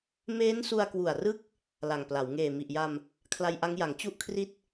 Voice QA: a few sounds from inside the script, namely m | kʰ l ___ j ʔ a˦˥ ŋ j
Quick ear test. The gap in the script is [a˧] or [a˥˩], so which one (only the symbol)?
a˧